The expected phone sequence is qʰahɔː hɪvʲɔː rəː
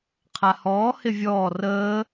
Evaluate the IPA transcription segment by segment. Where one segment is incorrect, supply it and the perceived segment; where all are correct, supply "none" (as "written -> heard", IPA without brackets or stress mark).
none